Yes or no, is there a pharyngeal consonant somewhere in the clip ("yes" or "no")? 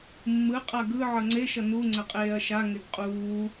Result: yes